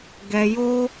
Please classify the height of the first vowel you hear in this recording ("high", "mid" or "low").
mid